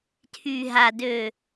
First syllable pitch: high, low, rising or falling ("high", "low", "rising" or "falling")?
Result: low